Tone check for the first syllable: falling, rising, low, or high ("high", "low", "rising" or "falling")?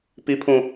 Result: high